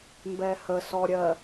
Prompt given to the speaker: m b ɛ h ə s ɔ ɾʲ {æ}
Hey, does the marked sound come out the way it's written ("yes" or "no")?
no